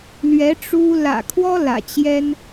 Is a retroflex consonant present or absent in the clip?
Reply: present